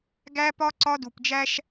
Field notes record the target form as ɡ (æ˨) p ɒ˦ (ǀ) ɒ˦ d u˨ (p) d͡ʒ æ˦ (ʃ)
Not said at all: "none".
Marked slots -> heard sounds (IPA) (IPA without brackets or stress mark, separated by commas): æ˦, ǀ, p, ʃ